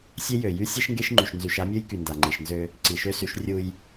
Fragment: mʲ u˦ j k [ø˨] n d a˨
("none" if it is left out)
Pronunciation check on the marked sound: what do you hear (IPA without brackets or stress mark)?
y˨